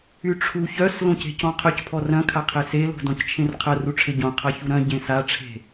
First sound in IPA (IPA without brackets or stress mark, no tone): y